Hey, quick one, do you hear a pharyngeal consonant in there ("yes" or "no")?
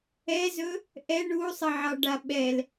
yes